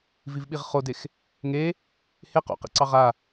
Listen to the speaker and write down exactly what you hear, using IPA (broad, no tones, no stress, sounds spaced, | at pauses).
v i v ɓ i ʁ χ o d e x | ŋ e | h e q o̰ q ḭ ǀ ɑ ʁ a